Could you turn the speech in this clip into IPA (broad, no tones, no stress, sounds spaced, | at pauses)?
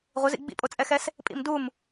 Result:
ʁʷ ɪ z ḭ ɡ͡b ḭ pʼ o t͡sʼ ɛ x ɛ s | pʼ ḭ m d u m